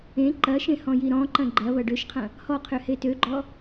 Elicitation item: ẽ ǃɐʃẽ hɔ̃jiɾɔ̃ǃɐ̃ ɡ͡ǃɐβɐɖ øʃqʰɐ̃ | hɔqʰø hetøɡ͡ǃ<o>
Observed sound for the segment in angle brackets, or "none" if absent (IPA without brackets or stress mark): ɔ